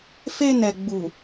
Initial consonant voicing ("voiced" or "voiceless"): voiceless